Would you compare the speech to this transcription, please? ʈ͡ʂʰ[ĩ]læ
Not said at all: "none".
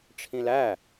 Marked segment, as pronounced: ĩ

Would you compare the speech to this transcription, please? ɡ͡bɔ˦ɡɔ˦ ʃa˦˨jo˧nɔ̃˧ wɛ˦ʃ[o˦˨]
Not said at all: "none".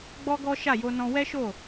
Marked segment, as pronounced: o˦˨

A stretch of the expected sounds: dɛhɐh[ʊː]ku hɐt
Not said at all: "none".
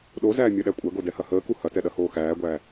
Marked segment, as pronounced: əː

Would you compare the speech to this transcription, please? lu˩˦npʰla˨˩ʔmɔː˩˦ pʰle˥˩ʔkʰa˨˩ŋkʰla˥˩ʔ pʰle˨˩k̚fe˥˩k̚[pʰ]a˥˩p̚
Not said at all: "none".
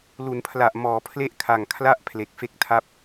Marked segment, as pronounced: tʰ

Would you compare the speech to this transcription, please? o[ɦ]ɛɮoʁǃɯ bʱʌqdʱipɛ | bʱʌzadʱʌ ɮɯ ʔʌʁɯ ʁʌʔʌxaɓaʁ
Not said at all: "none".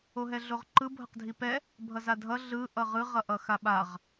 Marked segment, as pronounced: ɦ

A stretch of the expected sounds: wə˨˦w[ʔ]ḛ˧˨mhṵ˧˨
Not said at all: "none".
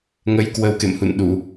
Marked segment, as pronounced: k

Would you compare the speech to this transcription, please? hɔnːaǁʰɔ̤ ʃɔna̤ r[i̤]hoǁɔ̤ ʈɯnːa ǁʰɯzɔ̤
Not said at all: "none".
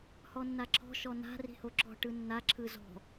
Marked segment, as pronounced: i̤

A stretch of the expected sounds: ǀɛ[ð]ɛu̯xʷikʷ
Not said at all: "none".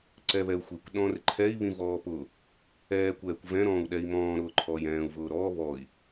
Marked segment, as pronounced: β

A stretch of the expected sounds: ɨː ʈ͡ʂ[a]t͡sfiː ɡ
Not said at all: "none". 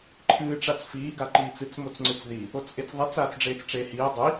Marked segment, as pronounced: a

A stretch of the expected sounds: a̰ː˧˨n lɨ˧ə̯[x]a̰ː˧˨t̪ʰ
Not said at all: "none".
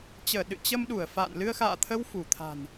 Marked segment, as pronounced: x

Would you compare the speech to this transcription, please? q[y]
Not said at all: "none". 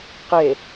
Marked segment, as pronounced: e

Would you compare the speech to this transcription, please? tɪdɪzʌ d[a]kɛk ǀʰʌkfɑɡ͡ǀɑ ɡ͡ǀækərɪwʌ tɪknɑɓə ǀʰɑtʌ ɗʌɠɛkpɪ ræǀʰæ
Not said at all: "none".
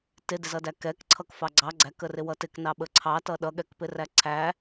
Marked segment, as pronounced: æ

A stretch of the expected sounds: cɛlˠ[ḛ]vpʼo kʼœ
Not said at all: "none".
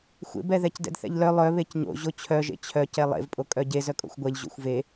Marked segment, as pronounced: ḛ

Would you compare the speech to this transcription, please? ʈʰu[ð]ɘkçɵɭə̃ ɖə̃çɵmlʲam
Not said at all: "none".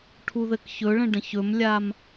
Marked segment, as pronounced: ð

